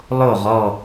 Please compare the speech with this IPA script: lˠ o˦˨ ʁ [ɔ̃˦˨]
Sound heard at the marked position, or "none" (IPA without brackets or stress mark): ɔ˦˨